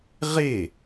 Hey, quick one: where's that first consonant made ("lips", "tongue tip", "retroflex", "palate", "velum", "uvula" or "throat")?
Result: uvula